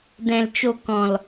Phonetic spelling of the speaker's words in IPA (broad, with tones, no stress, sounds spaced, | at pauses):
d ɛ̃˨ l t͡ʃ o˨ k ɔ̃˨ l